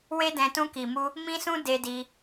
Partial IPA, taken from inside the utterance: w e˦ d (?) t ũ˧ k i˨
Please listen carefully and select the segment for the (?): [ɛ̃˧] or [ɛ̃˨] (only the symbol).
ɛ̃˧